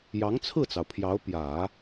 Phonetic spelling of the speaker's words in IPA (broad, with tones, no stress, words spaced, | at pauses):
jɑ˧˥ŋt͡sʰɹ̩˥˩t͡sɑ˩ʊ̯pʰjɑ˧˥ʊ̯ pjä˨˩˦